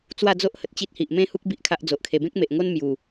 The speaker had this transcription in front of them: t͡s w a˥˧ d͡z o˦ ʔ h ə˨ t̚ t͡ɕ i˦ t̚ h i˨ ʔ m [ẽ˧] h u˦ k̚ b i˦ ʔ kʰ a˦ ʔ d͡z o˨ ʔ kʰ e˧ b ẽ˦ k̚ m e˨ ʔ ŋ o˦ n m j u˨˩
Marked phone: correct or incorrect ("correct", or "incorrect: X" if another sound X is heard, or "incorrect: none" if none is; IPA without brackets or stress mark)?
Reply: incorrect: ẽ˦